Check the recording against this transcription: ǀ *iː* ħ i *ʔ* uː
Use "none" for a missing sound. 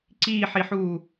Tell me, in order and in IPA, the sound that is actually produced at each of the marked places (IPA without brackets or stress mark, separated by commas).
iː, ħ